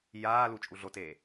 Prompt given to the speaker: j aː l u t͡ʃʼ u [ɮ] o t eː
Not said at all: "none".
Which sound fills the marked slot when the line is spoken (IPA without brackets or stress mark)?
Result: ɮ